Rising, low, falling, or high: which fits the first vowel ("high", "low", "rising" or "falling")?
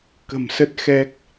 low